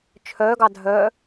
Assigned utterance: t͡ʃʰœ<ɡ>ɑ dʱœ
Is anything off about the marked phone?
no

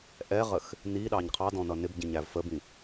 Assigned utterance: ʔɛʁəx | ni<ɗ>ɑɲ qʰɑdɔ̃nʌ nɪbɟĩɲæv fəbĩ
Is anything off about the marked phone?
no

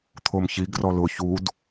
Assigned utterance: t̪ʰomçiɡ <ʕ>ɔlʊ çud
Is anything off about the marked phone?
yes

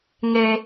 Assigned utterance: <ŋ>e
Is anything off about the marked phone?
no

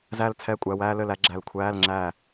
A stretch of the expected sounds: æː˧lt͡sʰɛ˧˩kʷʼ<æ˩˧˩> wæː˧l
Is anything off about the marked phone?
no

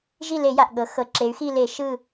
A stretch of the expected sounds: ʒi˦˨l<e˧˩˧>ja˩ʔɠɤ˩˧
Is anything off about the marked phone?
no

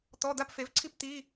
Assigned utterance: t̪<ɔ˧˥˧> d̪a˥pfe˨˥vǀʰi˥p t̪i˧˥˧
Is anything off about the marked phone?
no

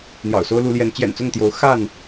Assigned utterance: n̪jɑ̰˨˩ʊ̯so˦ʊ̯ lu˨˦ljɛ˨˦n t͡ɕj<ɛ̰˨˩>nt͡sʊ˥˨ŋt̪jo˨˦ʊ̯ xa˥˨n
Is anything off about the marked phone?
no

